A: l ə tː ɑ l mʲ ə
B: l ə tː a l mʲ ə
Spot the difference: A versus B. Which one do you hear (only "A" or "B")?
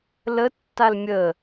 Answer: B